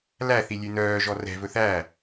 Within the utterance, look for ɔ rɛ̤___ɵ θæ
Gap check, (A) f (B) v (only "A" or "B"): B